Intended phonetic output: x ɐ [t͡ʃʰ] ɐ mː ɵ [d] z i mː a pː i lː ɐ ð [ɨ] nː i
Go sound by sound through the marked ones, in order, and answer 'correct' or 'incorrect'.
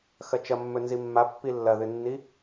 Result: incorrect: t͡ʃ, incorrect: n, correct

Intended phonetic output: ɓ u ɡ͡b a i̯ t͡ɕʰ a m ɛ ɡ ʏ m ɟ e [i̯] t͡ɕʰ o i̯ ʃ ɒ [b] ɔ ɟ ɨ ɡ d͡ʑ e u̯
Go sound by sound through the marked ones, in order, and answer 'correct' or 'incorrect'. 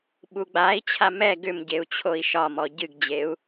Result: incorrect: u̯, incorrect: m

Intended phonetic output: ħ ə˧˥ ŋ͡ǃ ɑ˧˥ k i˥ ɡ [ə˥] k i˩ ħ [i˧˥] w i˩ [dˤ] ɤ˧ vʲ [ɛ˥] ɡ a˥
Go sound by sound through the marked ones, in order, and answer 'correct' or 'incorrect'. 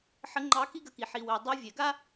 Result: incorrect: ə˧, incorrect: i˩, correct, incorrect: ɛ˩

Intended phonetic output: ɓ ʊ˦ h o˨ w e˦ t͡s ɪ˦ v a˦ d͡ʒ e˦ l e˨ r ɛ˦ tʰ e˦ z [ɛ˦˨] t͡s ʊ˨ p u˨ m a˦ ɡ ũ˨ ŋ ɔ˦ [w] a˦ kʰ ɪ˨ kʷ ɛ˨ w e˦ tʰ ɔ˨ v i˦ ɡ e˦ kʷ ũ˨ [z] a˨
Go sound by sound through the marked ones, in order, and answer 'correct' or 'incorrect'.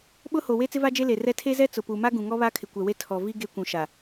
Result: incorrect: ɛ˦, incorrect: β, incorrect: ʃ

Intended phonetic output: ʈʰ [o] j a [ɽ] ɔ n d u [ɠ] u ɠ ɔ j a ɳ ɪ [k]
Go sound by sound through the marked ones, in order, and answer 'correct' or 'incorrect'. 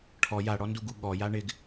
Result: incorrect: ɔ, correct, incorrect: ɡ, incorrect: ɡ

